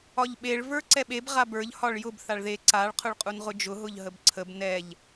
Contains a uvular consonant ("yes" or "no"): yes